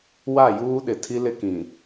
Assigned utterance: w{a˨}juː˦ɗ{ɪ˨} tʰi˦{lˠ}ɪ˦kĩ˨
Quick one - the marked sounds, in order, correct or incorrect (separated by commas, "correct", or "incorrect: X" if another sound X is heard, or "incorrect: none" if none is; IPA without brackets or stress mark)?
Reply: incorrect: a˦˨, correct, incorrect: l